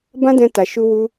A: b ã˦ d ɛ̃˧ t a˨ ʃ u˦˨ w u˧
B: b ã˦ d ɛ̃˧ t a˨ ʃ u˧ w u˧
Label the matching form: B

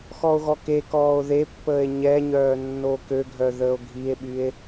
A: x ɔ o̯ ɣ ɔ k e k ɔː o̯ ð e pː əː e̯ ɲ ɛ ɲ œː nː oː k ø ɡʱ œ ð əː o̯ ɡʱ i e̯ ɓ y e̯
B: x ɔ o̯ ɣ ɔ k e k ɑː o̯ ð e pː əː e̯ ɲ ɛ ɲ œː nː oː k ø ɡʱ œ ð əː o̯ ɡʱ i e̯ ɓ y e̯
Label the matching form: A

